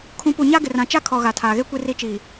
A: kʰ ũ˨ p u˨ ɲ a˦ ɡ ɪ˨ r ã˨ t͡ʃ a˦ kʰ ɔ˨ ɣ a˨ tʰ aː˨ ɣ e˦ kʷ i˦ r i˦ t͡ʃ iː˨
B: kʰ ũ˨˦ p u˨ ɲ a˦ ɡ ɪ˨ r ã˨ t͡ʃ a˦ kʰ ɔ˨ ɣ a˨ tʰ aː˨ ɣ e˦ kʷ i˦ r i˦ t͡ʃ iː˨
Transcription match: B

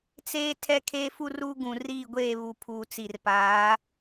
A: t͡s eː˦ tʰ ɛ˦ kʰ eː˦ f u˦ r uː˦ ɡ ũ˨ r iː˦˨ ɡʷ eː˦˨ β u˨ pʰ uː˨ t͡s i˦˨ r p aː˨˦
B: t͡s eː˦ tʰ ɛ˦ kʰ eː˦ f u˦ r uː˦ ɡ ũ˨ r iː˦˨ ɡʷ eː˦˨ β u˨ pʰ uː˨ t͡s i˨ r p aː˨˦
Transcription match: B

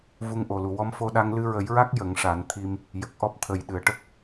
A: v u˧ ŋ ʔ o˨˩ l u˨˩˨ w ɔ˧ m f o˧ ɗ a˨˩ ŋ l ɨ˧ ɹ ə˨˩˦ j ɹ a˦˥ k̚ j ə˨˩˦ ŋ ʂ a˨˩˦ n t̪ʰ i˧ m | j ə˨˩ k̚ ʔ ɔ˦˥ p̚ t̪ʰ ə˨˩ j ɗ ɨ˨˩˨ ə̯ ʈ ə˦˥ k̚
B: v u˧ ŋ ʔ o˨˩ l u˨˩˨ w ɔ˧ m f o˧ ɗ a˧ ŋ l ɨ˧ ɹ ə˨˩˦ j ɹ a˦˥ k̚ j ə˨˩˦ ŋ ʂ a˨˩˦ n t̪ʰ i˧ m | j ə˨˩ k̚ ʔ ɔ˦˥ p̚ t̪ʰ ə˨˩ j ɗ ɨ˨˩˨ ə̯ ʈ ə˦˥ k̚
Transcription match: B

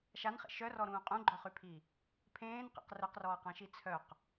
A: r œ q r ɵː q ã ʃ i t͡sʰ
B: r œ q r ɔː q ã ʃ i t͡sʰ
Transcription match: B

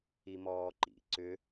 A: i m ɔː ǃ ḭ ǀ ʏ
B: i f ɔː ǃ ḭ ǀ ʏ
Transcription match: A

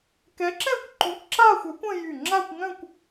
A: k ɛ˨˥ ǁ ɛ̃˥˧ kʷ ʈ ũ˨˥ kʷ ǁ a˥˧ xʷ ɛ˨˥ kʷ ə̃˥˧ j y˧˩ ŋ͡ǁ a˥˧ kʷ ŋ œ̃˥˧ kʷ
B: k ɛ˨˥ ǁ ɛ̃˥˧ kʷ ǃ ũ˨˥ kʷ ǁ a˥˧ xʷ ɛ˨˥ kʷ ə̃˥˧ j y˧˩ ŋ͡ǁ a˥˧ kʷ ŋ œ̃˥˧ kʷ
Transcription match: B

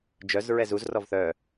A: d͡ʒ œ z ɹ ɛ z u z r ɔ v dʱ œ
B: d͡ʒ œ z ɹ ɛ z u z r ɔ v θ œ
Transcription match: B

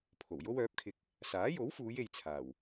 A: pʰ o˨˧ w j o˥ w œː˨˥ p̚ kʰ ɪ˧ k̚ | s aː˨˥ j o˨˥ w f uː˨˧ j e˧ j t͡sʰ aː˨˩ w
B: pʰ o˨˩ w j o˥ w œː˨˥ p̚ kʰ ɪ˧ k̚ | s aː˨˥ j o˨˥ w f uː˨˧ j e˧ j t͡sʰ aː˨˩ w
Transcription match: B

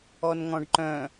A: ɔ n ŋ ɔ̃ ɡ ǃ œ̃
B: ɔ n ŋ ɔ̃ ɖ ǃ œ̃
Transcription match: B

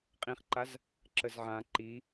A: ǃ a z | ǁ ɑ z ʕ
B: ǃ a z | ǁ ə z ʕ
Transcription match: B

